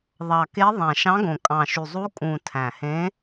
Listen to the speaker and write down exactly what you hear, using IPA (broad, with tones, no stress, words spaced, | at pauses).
ðˤɑ˨˩ke˧˥ ðˤæ̃˨˩ʃɑ̃˧˥ɡõ˨˩ kʼɑ̃˨˩ʃy˨˩zˤu˧˥ kʼũ˨˩ tʰæ̃˨˩hẽ˧˥